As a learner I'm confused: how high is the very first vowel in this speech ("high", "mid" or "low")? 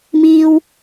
high